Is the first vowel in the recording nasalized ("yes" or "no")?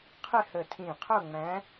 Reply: no